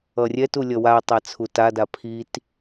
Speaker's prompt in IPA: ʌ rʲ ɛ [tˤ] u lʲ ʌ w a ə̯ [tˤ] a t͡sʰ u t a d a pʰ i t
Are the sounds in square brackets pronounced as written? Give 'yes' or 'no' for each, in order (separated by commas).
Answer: no, yes